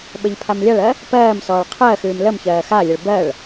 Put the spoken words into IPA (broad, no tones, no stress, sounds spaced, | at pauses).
ɓ ə ʎ pʰ a m lʲ a ɭ ɜ | p ɜː m s ɔː ɭ qʰ ɜ x ʉː m l ə m ç ɜː x a lʲ ə ɭ b ɜ ɭ